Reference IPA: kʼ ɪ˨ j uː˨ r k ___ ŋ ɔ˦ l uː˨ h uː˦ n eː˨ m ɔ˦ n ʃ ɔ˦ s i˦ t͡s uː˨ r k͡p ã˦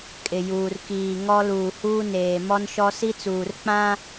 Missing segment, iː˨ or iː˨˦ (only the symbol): iː˨